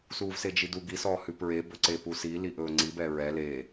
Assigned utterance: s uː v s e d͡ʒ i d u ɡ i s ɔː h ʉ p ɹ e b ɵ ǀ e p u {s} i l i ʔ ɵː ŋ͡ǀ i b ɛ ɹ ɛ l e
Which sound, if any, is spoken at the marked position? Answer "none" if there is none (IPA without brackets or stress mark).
s